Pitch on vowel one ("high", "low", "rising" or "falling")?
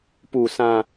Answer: low